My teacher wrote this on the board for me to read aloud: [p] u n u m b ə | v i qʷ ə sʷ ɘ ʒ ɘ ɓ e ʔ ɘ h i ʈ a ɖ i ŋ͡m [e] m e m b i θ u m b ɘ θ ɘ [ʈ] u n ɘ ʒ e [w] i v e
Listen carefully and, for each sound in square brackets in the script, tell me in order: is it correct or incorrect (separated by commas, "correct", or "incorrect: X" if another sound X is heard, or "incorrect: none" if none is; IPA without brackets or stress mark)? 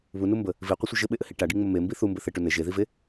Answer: incorrect: β, incorrect: ɘ, correct, incorrect: ð